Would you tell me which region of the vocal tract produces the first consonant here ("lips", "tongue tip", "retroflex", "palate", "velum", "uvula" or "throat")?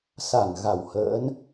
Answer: tongue tip